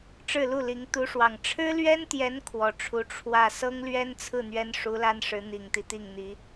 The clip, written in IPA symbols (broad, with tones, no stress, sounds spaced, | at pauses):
ʈ͡ʂ ɻ̩˥˧ l u˥˩ l i˧˥ ŋ t̪ u˧˥ ʂ w ɑ˨˩ ŋ ʈ͡ʂʰ ɻ̩˥ l ɥ ɛ˥ n t̪ j ɛ˧˥ n kʰ w ɔ˨˩ ʈ͡ʂʰ u˧˥ ʈ͡ʂʰ w ä˥˩ s ɤ˥ ŋ l ɥ ɛ˥ n t͡sʰ ɹ̩˥˩ n̪ ɥ ɛ˥ n ʂ u˧˥ l a˥ n ʂ ɻ̩˧˥ n̪ i˨˩ ŋ t̪ i˦ t̪ i˥˩ ŋ n̪ i˧˥